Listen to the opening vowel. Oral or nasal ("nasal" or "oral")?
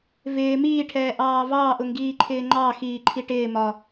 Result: oral